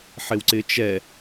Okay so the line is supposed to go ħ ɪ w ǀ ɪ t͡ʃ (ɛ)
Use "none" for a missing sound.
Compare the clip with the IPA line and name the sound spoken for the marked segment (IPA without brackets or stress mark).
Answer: ɛ